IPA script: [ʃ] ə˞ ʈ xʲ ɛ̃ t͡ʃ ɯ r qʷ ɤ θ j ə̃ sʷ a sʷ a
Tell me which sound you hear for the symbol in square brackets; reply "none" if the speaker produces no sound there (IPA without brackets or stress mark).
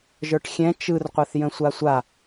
ʒ